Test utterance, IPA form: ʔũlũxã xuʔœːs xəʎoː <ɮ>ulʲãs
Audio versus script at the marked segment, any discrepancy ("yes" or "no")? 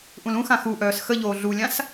no